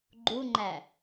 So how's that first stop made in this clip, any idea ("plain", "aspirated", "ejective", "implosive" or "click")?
click